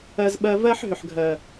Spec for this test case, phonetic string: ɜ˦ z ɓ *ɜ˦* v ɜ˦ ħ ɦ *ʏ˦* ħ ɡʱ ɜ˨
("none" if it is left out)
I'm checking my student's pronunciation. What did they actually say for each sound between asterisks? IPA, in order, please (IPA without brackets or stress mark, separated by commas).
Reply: ɜ˦, ʏ˨